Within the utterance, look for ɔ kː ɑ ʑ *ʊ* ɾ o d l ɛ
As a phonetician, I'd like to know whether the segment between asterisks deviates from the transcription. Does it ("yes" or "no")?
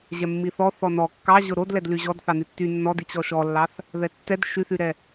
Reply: no